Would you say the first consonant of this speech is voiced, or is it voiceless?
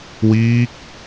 voiced